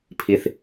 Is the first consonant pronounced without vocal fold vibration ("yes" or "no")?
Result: yes